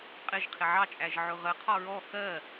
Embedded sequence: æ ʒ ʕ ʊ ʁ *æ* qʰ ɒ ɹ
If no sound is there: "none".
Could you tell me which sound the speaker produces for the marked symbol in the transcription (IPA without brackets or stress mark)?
ə